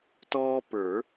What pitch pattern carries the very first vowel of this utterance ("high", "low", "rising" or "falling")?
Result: high